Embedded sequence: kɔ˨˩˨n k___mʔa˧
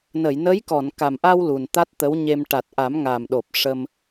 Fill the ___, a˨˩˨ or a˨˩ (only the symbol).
a˨˩